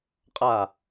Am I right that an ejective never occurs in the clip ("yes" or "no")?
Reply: no